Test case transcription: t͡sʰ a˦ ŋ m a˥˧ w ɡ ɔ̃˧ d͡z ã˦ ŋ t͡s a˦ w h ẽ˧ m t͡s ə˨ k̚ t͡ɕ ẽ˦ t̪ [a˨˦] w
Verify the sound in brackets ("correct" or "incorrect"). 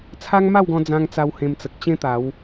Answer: correct